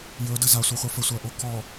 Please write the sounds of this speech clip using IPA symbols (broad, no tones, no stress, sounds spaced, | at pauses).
j ɵ d ə z a sʷ ɛ χʷ a f ə sʷ æ ʔ o k ɔ